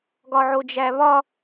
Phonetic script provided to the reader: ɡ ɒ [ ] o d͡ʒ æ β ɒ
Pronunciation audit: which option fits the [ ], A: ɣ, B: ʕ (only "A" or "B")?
B